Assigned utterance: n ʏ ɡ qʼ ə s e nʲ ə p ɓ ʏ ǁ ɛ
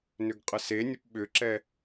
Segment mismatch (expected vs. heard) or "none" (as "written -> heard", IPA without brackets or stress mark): none